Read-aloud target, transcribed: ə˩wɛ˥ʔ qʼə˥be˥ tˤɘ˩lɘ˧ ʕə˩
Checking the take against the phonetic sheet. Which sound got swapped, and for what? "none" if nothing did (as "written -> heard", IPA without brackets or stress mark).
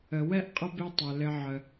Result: none